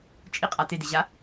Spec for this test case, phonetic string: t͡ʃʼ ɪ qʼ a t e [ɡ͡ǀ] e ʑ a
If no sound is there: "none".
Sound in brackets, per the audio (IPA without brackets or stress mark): d